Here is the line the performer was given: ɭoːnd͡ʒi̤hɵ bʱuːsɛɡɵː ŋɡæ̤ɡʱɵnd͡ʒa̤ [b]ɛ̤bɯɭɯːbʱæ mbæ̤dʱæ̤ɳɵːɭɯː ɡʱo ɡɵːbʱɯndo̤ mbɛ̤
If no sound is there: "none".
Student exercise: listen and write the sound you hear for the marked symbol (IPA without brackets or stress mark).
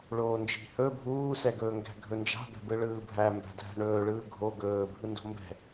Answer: b